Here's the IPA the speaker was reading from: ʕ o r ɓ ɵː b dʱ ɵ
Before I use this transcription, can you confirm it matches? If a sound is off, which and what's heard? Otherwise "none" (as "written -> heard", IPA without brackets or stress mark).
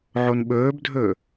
r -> n